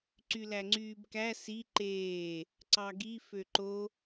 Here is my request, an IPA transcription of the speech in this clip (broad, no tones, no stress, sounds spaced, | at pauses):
ǀ y l æ ŋ͡ǀ yː b k æ s i ǃ eː | ǀ ɑ ɡ i f ø ǃ o